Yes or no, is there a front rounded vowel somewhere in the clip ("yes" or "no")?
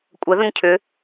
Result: yes